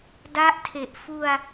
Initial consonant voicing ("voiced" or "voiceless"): voiced